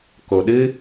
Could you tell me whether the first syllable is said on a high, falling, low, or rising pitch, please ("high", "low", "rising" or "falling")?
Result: low